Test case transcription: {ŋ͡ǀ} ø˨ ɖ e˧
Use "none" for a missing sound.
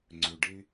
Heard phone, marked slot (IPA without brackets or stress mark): ŋ͡ǀ